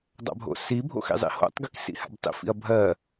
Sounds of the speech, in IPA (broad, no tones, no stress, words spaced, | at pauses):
dˤa̰bʱo̰sibʱo̰ xḭzˤḭho̰tˤɡik sḭha̰btˤḭfḭɐ̯ bʱɜ